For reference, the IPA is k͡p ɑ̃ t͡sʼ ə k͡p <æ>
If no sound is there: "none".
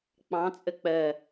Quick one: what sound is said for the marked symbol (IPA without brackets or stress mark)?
ɜ